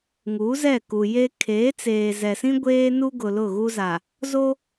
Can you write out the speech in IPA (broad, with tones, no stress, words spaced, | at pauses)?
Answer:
ŋu˨˦zɛ˦˨ ku˨je˦ kʰeː˨˦t͡seː˨zɛ˨sĩ˦ ɡʷeː˦nu˦ɡʊ˨ lʊ˦˨ɣu˦za˨ | zo˦